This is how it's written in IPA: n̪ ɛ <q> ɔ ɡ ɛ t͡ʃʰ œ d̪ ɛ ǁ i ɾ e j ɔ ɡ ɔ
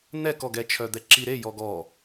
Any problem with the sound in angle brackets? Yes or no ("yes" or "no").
yes